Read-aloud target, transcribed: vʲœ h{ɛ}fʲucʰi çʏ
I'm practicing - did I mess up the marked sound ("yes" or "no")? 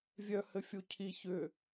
yes